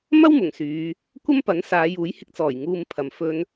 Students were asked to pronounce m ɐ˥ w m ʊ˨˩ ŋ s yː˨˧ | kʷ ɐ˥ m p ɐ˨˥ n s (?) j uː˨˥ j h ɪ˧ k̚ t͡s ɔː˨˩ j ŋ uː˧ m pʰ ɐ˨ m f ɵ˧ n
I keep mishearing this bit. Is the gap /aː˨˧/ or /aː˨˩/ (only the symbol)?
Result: aː˨˧